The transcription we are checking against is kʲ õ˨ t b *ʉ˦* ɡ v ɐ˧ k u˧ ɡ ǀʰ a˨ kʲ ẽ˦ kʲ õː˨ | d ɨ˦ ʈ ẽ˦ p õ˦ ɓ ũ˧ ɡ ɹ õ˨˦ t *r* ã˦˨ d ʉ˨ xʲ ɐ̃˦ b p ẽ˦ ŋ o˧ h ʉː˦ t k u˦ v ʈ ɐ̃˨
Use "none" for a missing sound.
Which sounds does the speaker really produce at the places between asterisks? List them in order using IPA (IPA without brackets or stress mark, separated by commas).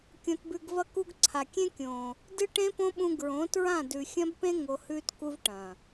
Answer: ʉ˨, ɹ